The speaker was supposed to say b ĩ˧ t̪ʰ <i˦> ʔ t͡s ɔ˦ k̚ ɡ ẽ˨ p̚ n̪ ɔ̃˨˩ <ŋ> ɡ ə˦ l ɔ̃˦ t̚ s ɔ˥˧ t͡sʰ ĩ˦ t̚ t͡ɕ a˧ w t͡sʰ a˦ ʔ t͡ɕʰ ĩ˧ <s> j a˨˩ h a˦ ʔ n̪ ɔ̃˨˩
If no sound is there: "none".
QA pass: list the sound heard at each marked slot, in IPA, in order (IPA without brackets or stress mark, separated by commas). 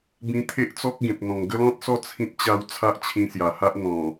e˦, ŋ, s